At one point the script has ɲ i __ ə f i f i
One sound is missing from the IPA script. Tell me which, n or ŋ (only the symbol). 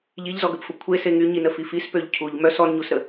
n